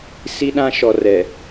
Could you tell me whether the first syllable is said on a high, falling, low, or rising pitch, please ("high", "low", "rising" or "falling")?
high